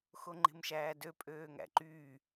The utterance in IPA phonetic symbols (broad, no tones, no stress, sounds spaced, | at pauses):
x o ŋ͡ǃ e̤ m ʃ æː d ø pʼ øː ŋ æ̰ ǃ yː